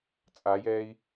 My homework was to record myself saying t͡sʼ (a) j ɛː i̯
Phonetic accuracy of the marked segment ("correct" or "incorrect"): correct